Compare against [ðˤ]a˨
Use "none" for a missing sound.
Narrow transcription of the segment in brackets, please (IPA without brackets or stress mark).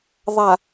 ðˤ